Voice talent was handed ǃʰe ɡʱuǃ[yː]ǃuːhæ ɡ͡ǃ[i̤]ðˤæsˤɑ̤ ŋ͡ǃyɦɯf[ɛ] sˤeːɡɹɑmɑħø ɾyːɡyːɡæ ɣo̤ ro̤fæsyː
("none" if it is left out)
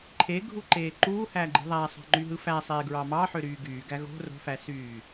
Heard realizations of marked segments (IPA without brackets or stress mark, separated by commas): eː, i̤, æ